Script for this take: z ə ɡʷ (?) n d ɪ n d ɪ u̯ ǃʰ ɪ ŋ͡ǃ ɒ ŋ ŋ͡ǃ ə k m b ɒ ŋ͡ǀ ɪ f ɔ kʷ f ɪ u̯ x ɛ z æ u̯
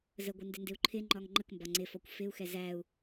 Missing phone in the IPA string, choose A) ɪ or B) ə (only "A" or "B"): A